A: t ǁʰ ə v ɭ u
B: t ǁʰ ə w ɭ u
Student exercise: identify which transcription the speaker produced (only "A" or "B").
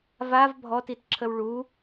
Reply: B